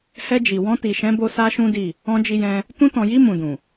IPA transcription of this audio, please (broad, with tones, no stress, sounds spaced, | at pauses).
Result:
h ɛ˧ d͡ʒ i˨ w ɔ̃˧ t i˨ ʃ ɛ̃˨˦ b o˧ s a˦ ʃ ũ˦ d i˦˨ | ɔ̃˧ d͡ʒ i˧ j ɛ̃˧ | t ũ˧ t ɔ̃˨ j i˧ m ũ˨ d ũ˨